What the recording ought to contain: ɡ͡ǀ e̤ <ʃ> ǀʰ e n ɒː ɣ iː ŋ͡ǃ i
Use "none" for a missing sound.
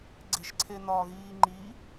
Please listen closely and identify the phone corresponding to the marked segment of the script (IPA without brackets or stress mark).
ʃ